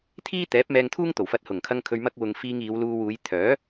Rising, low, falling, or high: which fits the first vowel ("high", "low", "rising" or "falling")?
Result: high